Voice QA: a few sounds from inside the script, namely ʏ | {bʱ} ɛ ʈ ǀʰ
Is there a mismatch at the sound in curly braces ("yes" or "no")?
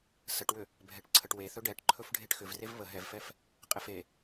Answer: no